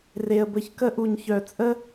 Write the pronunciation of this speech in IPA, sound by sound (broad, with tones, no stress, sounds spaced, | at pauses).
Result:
r e˨ ə̯ b əː˧ ç k ə˦ ʔ u˨ ɲ ç œː˨ t͡sʼ ə˦